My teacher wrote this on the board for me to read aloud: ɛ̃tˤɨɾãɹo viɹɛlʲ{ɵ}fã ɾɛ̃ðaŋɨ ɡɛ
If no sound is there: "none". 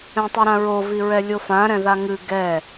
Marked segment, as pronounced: o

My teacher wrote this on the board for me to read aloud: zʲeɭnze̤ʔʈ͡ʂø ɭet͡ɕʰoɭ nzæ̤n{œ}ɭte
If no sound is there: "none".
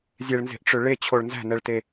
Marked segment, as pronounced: ɛ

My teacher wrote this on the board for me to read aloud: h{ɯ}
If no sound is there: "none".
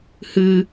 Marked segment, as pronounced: ɯ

